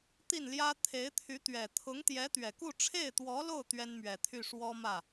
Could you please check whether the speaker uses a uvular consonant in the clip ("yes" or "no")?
no